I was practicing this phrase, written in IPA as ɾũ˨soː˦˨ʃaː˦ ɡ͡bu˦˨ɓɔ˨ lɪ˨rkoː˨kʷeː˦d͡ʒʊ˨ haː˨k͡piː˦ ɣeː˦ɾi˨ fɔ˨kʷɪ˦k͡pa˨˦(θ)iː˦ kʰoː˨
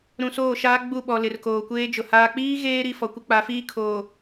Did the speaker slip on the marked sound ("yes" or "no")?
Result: yes